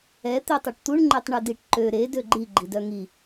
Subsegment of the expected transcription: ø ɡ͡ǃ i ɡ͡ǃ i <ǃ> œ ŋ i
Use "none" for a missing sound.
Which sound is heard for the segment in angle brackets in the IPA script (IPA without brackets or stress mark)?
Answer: d